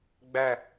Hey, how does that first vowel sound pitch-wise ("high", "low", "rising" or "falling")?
falling